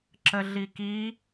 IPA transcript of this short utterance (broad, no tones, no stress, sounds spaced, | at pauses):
ǁ ə ɮ i k i